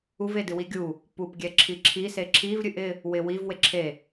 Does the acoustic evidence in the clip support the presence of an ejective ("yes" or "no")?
no